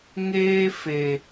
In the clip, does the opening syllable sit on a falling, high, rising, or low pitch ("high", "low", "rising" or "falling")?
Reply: high